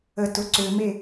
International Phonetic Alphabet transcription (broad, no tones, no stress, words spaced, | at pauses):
ətʊ ǀʏme